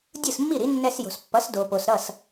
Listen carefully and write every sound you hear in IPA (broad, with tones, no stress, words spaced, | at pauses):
dʲɯ˥˩smːi˥˩ɾi˩˥ nːɛ˧sjo̤˩spːʌ˩˥s do˩po˩s ɾʌ˥˩s